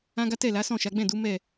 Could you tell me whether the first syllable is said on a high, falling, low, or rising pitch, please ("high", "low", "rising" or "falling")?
high